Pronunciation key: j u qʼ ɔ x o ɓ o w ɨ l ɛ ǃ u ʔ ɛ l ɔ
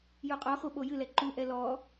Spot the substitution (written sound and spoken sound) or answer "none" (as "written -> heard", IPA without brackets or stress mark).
w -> j